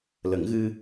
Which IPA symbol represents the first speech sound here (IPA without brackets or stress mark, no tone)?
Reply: l